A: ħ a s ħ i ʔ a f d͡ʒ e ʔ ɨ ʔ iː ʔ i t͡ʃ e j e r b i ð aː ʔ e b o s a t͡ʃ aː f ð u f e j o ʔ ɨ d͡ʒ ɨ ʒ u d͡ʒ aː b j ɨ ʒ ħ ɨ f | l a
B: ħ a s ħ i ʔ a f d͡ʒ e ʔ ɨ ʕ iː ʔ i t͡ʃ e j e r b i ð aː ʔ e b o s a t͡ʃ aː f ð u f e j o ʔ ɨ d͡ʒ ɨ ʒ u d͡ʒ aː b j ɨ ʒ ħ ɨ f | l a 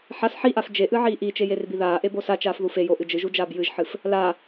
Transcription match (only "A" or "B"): B